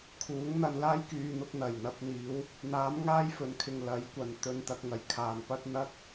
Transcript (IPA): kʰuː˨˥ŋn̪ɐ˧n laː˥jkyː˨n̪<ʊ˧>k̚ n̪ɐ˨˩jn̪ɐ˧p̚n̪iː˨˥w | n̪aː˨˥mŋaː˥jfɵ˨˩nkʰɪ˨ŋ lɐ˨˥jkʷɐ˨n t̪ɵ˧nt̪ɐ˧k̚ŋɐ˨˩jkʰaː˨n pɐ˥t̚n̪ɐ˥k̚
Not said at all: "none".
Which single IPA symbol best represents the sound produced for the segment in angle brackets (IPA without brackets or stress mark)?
ʊ˧